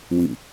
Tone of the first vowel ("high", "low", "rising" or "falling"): falling